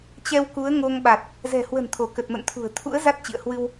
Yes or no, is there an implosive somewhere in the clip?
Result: yes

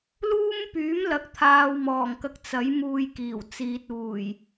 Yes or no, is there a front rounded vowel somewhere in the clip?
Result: yes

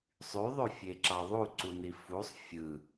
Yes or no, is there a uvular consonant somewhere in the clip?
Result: no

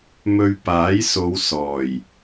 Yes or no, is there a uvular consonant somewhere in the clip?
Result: no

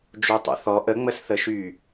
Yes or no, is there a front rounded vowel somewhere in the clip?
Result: yes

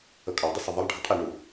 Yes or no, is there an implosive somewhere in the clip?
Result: no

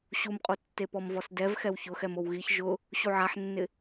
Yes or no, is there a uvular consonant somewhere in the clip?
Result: yes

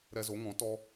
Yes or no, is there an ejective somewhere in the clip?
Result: no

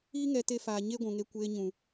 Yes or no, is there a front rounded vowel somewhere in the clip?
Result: no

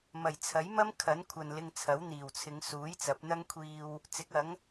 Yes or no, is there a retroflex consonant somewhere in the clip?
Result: no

